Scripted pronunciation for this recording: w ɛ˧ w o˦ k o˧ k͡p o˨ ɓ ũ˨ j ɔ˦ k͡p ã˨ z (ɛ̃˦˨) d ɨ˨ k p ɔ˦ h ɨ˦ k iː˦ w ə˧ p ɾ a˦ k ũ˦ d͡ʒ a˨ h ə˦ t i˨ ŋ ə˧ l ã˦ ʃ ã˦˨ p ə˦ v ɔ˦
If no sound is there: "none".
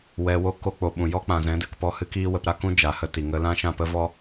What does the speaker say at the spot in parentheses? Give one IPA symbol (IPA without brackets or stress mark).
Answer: ɛ̃˨˦